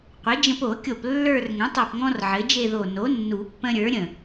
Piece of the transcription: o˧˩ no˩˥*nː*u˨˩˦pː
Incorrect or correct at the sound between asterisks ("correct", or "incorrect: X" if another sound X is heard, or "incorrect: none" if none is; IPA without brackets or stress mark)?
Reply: correct